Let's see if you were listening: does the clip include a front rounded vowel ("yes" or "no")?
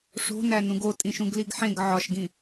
no